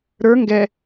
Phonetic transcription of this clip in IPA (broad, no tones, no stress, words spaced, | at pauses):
ɾə˞ ŋɡɛ